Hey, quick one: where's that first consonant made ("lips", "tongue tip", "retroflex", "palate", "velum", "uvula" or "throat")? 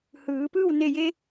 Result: throat